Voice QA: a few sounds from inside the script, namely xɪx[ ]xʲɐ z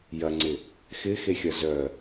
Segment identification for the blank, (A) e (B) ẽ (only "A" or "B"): A